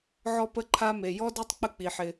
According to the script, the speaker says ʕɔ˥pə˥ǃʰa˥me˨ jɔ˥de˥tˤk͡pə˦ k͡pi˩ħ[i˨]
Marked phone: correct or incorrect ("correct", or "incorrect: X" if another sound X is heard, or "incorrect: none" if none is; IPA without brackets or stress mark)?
incorrect: ɪ˨